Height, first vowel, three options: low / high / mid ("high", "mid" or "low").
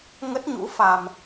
mid